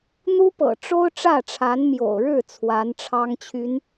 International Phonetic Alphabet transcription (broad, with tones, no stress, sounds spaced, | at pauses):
n̪ u˥ p ɤ̰˨˩ ʈ͡ʂ o˥ ʊ̯ ʈ͡ʂ ä˥˩ ʈ͡ʂʰ a˧˥ n m j o̰˨˩ ʊ̯ ɻ ɻ̩˥˩ t͡sʰ w a˧˥ n ʈ͡ʂʰ ɑ˥ ŋ t͡ɕʰ y˧˥ n